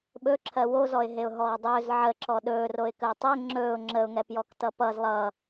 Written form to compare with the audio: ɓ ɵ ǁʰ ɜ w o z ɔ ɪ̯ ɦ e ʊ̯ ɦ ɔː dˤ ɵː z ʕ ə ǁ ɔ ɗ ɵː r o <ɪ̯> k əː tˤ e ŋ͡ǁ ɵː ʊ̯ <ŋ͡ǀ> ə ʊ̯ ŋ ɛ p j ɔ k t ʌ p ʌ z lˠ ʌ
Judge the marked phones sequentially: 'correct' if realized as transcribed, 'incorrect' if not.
correct, incorrect

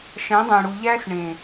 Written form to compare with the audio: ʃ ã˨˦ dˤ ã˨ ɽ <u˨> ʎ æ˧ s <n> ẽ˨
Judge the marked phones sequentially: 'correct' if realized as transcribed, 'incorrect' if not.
correct, incorrect

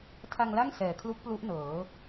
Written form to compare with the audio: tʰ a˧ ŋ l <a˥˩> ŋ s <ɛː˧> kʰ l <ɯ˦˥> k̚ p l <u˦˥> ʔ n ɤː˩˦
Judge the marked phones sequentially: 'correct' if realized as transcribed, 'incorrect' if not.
correct, incorrect, incorrect, correct

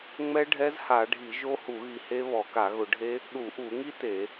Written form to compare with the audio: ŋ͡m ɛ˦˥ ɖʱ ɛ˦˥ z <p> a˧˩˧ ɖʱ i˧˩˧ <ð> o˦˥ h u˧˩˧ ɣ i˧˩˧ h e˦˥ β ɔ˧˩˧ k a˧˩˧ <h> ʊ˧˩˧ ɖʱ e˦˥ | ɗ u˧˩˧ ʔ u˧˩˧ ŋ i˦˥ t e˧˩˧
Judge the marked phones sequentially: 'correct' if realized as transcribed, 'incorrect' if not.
incorrect, incorrect, incorrect

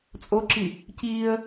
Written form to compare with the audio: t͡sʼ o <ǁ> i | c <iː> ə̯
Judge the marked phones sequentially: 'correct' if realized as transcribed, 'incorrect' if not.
correct, correct

